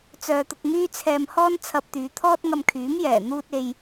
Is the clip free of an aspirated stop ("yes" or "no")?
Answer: no